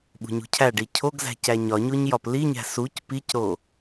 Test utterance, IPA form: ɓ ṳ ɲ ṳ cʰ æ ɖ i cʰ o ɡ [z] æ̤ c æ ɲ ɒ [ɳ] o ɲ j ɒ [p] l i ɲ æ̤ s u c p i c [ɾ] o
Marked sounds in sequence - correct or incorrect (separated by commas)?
correct, incorrect, correct, correct